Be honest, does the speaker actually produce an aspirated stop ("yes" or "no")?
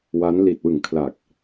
yes